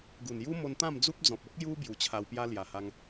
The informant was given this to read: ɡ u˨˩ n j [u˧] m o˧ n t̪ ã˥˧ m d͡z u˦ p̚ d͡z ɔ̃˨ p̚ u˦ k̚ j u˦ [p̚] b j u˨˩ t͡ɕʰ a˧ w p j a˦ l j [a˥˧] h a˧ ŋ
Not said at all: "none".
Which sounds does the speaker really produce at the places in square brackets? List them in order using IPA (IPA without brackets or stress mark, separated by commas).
u˦, none, a˨˩